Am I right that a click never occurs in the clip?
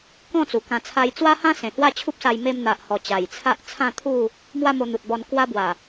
yes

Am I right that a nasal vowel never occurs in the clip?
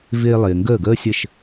yes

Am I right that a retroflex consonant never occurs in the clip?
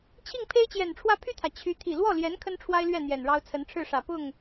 no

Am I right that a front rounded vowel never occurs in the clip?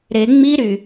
no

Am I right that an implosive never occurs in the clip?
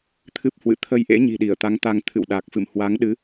no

